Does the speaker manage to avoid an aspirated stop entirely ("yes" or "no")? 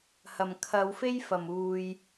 no